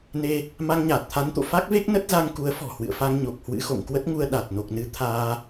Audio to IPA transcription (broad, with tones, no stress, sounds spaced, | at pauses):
n e˧ | m a˧ ŋ ɲ aː˨˩ t̚ t̪ʰ a˨˦ n t̪ o̰˧˨ f a˦˥ k̚ v e˦˥ k̚ n ə˦˥ t̚ z a˧ ŋ k u˨˦ ə̯ f ɔ̤˨˩ h w ɨ̰˧˨ ə̯ f a˧ ŋ ɲ o˨˩ k̚ h w ɨ̰˧˥ x o̰˧˨ ŋ k w ə˦˥ t̚ ŋ u˧ ə̯ ɗ a˨˩ t̚ n o˨˩ k̚ n ɨ˨˦ t̪ʰ aː˧